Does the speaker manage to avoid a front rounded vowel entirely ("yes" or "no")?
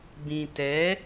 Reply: yes